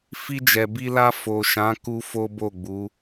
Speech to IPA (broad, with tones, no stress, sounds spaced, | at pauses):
f i˧ d͡ʒ ɛ˨ b i˧ l a˧ f o˨ ʃ ã˨˦ k u˦ f o˦ b o˦˨ ɡ͡b u˨˦